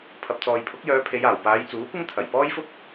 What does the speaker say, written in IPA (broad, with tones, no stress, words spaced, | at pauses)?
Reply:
pʰɐ˨p̚t͡sɔː˨jpʰʊ˨˥k̚jœː˨˧ pʰe˨˧jaː˨˩wpaː˨˧j t͡suː˨˥kʷɪ˥ŋ t̪ʰɐ˨˩jpɔː˥jfʊ˥k̚